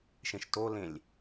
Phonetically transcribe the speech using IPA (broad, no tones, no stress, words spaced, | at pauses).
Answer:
ʃẽʃtolẽlʲ